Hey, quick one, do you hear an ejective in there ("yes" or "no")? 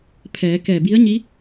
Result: no